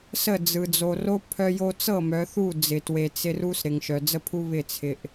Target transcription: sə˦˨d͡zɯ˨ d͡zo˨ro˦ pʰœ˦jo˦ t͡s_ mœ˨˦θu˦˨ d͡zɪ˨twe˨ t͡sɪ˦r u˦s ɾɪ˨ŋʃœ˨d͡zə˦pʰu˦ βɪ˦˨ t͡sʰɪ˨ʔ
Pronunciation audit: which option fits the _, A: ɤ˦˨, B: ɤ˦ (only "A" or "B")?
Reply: A